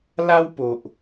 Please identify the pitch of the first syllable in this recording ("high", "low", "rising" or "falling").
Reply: high